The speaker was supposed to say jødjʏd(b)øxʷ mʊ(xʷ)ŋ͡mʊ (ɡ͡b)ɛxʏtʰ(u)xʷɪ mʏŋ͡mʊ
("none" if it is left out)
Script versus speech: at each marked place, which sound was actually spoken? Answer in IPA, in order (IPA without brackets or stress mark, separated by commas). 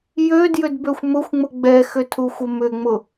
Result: b, xʷ, ɡ͡b, u